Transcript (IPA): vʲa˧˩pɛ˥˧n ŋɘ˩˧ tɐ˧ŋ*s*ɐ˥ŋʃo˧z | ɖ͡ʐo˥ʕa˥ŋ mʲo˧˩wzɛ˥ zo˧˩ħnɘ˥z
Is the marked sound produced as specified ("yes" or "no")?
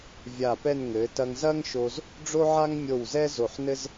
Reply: no